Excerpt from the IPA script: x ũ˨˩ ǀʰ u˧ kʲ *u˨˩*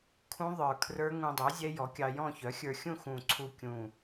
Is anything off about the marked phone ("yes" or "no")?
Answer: yes